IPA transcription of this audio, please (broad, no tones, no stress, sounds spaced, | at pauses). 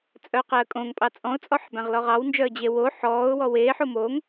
t͡sʼ œ q ɛ ə̯ kʼ õ ŋ pʼ ɑ t͡sʼ ɔ̃ ʊ̯ t͡sʼ ɔ ħ b æ̃ ʁ l ɔ ʁ ɑ w n d͡ʒ œ ə̯ d͡ʑ e w o ħ ɔː ʊ̯ w ɔ w eː ħ o m o ŋ